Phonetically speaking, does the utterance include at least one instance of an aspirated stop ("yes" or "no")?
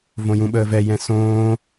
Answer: no